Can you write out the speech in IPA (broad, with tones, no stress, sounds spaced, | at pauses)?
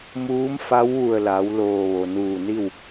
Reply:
m uː˧˥ m f a˧˥ w ʋ u˧˩ ə̯ l a˩˧ w l oː˧˩ ʋ o˩ n uː˧˩ n i˥˨ w